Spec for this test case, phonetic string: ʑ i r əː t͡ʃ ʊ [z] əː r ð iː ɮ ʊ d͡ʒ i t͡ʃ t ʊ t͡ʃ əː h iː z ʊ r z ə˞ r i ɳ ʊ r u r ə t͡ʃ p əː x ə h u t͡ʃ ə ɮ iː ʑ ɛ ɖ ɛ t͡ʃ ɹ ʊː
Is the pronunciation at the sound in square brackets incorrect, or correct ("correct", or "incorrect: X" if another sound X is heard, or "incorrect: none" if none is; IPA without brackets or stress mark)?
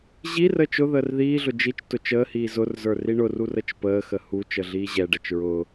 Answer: incorrect: ð